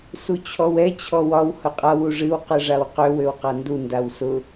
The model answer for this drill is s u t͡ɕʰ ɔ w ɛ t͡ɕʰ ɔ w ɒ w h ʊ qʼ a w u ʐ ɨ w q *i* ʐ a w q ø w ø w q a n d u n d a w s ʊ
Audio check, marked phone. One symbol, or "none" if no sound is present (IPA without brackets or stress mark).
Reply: ɨ